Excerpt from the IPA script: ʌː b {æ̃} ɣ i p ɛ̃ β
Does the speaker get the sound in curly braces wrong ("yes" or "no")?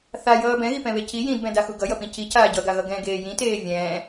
yes